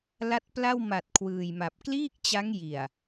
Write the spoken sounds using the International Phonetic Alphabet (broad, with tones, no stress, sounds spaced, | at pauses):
l a˦˥ t̚ p l a˥˩ w m a˨˩ t̚ kʰ w ɯː˨˩ j m a˨˩ p̚ k l iː˥˩ k̚ t͡ɕ a˦˥ ŋ j i˨˩ a̯